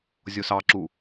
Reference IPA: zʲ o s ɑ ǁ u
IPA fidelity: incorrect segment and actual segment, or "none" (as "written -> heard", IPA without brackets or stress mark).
none